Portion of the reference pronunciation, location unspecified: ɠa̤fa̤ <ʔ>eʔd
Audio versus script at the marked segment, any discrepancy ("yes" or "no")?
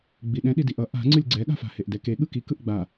yes